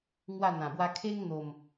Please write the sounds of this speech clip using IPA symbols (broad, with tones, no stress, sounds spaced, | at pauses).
ŋ w a˥˧ n̪ ã˨˩ b w a˦ kʰ e˦ ŋ n̪ o˨˩ m